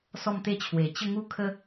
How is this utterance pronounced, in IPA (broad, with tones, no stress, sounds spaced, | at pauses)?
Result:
s ɔ˥˧ m t̪ e˥˧ t͡ɕʰ w e˨˩ t͡ɕ ə˥˧ ŋ u˥˧ kʰ ə˦